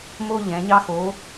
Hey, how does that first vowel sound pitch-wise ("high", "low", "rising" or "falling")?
high